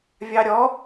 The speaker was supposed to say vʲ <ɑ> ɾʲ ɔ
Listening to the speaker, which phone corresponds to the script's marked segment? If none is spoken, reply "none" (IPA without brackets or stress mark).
ɑ